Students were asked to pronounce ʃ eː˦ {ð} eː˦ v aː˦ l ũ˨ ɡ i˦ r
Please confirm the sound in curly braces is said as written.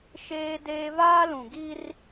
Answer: no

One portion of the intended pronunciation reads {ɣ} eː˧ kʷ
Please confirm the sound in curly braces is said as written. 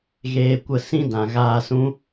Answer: yes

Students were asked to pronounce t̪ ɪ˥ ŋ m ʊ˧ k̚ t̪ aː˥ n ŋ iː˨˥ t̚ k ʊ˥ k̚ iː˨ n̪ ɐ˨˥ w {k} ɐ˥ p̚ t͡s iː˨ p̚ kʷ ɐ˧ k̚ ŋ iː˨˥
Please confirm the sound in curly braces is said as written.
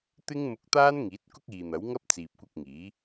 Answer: no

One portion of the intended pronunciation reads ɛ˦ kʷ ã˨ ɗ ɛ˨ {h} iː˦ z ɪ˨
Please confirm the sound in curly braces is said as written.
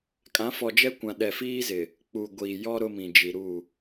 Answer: no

